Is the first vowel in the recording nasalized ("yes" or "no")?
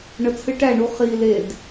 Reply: no